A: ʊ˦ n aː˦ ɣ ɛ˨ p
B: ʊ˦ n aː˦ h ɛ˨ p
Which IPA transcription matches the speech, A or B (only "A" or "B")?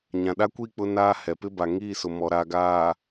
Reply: B